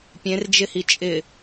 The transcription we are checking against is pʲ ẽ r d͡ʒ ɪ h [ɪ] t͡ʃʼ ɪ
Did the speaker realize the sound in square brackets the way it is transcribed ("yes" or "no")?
no